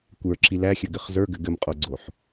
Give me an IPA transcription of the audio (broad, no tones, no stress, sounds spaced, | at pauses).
kʷ ə˞ ǁ i l æ xʲ ɘ ɡ ɘ χ z ə˞ ɡ ɘ ɡ ɘ m qʼ o ɡ͡ǀ o ħ